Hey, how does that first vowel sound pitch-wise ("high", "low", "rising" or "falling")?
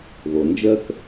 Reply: low